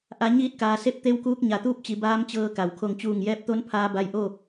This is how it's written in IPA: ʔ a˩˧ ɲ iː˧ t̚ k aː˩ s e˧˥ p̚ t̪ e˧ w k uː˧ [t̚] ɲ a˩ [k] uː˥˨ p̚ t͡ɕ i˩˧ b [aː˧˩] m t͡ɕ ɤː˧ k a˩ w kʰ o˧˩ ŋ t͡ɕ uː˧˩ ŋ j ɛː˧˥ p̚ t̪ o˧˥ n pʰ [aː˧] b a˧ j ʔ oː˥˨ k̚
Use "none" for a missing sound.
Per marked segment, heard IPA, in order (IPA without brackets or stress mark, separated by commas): k̚, t̪, aː˧˥, aː˧